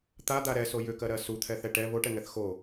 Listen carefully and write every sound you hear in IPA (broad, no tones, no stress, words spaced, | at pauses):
t̪ad̪a ɾɛso jʏkɜɾɜ sut̪ʰɛθɛ ʈɛ βoʈɛŋɛθ xo